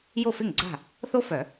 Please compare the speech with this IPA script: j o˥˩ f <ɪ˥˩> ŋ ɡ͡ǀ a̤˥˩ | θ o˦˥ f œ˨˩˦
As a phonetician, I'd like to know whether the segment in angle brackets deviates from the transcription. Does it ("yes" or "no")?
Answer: no